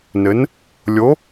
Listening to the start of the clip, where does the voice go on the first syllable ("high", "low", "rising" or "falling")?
rising